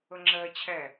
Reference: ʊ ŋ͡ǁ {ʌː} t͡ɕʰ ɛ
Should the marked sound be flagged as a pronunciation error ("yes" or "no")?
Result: yes